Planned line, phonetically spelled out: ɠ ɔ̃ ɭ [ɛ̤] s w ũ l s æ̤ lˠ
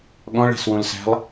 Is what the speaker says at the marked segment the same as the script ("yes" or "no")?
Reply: yes